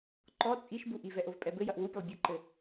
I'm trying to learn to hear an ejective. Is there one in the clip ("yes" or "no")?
yes